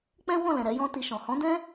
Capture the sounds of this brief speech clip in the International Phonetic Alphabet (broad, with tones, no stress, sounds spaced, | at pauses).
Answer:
k͡p ɛ̃˦ w ɔ̃˦˨ l ɛ̃˨ ɾ ɛ˨˦ j ɔ̃˦ t i˧ ʃ ɔ̃˨ h ɔ̃˨˦ d ɛ̃˦